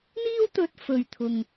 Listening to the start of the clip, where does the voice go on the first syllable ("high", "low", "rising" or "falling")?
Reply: high